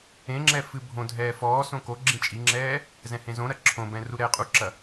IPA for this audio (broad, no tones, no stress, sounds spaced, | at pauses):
ẽ ŋ͡ǁ ɛ f ɨ bʱ õ dʱ ɛː f ɔː s õ k o ɡ͡ǁ ĩ t͡ʃʼ i ŋ͡ǁ ɛː | z ɛ̃ h ẽ z õ ɾ ɐ ǁʰ õ b ɛ̃ r u ɾ ɛː qʼ u ǁ ɐ